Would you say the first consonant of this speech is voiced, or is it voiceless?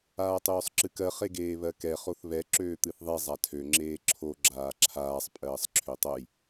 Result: voiceless